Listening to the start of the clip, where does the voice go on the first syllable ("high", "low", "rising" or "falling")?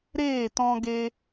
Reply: falling